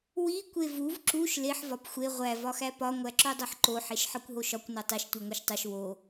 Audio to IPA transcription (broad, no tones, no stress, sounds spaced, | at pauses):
w i kʷ e v u v ǁ u ʃ l e ħ v ɒ p xʷ e ʁʷ æ v ɒ x æ p ɒ ŋʷ æ ǁ o dˤ o ħ ǃ o ħ e ʃ ħ ɒ kʷ ɦ o ʃ ɒ kʷ n o tˤ i ʃ tʷ i ŋʷ e ʃ tˤ u ʃ w o